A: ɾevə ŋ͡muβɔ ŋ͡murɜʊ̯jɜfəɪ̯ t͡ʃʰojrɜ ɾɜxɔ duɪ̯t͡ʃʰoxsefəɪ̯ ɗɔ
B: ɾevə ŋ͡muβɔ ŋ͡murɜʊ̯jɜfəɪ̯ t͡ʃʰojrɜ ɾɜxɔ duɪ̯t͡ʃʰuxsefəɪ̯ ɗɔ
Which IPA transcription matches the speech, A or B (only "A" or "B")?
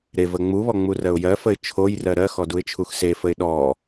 B